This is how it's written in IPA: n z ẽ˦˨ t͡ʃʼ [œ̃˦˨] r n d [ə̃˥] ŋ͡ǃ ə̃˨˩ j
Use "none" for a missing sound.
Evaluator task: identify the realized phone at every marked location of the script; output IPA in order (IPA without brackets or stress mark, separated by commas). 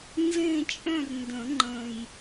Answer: œ̃˦˨, ə̃˨˩˦